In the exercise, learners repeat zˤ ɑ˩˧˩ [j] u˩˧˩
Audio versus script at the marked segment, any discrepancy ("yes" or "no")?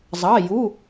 no